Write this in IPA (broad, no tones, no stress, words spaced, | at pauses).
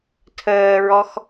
tʰəːɹɔx